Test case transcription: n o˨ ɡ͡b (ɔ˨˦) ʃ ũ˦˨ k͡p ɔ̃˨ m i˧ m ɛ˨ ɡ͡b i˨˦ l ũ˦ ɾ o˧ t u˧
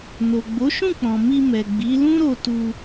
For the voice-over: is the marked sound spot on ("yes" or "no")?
no